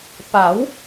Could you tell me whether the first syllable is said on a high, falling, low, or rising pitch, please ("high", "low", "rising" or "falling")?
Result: rising